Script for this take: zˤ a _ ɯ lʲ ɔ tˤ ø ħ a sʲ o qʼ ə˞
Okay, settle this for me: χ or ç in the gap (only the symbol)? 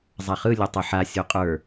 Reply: χ